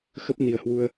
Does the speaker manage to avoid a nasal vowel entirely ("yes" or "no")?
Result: yes